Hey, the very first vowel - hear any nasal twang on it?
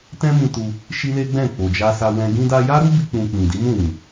yes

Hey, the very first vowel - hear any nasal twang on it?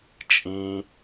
yes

